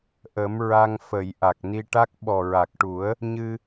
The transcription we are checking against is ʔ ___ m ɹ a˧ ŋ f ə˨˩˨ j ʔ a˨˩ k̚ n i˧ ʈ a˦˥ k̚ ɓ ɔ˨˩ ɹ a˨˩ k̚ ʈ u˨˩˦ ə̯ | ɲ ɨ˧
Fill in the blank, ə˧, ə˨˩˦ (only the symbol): ə˨˩˦